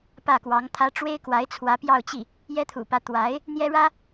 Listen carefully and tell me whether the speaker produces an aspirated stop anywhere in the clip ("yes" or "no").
yes